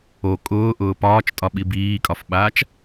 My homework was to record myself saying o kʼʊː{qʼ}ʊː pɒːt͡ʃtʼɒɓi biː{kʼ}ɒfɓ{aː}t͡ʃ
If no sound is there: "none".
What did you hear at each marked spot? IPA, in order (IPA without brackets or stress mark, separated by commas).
ʔ, kʼ, aː